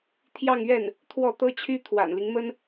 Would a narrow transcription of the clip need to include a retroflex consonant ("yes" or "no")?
no